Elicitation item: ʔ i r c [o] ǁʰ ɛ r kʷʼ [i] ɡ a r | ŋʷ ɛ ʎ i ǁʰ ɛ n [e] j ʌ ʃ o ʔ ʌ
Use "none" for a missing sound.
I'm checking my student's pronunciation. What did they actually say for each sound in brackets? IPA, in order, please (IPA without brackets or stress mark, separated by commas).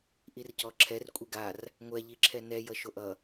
ɔ, i, ɛ